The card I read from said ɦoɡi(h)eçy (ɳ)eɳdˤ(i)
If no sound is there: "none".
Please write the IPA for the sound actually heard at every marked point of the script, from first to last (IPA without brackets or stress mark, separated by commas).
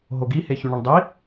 h, ɳ, i